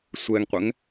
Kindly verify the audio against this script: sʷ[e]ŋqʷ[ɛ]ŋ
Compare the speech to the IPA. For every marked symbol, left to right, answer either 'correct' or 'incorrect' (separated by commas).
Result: incorrect, correct